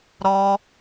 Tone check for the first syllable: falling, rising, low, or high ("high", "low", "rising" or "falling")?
low